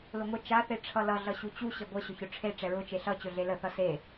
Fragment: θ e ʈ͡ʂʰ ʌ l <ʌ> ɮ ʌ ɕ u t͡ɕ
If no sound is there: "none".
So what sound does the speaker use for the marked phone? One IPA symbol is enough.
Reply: ʌ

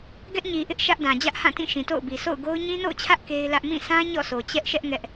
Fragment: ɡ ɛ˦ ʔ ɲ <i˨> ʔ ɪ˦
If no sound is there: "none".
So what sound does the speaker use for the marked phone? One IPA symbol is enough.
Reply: i˨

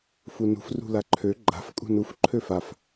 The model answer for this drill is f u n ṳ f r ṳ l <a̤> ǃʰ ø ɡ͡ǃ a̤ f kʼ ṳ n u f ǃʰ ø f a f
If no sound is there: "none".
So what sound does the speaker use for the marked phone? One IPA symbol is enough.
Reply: a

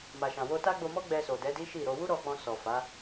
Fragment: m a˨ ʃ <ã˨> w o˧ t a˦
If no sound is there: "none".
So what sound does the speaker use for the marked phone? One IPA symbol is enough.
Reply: ã˨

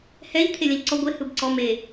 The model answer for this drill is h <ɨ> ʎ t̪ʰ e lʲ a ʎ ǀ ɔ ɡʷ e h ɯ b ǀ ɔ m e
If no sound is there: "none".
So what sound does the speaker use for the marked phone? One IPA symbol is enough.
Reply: ɛ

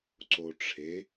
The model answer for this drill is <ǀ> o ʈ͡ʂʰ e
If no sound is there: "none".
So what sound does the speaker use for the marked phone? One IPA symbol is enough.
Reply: ǀ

